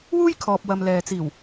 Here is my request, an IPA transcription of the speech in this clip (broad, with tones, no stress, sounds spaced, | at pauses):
w uː˥ j kʰ ɔː˨ p̚ w ɐ˨ m l ɛː˨ t͡s iː˨˩ w